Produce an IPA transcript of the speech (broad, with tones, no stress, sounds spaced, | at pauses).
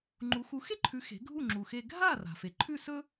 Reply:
ŋ͡ǃ u˩˥ x u˩˥ x e˥ ǃʰ ʉ˩˥ x e̤˩˥ ɡʱ u˥˩ ŋ͡ǁ u˩ x e˧ ɡʱ a˥˩ r a̤˩ f e˩ ǃʰ ʉ˥˩ s ɵ˥